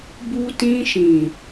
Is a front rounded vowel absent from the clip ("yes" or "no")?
yes